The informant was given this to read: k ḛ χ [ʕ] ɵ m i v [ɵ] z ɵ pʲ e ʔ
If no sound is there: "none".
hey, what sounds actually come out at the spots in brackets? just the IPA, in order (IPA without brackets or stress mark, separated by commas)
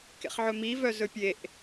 ʕ, œ